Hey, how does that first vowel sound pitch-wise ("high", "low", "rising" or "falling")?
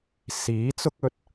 rising